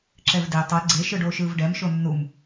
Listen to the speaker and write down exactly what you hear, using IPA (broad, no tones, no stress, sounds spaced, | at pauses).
ǁ ɛ v d e tˤ ɛ ɡ͡ǀ e ʃ ɯ ɖ oː ʃ ɯː v ɖ ɛ m ʃ o nː u m